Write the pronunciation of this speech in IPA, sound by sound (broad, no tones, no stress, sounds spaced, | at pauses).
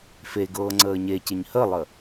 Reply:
f e ɡ ɤː ŋ͡ǀ əː ɲ e c ɪ ɲ h ə lˠ ə